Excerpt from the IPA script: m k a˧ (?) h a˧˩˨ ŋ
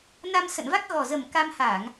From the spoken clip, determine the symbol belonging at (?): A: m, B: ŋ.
A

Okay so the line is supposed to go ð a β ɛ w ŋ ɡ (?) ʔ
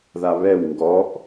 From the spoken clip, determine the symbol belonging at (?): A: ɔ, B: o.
A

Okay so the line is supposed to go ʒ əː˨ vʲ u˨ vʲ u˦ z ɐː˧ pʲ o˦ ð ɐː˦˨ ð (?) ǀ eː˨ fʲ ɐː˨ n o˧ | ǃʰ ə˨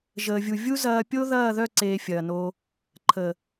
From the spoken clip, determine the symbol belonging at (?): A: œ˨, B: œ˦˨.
B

